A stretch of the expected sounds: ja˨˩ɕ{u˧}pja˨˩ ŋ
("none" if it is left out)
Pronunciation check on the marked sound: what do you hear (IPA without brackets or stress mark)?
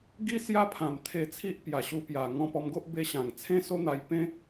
u˧